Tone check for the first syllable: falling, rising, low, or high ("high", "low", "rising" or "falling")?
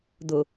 low